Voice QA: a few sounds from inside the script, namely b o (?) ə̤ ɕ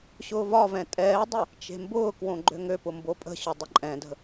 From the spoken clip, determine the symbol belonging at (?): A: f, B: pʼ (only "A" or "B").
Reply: B